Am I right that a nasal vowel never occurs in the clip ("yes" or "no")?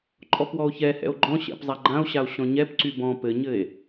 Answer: no